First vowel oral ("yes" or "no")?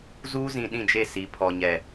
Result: yes